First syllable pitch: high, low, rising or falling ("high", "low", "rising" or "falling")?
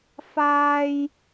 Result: high